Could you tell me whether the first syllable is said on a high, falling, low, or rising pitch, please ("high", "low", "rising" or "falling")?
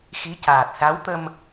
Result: rising